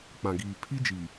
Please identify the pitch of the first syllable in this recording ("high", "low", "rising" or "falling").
low